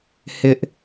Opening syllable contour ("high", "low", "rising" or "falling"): high